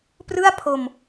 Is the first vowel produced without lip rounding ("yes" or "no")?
yes